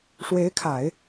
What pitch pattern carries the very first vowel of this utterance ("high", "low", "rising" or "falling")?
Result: rising